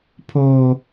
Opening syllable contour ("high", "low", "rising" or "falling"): high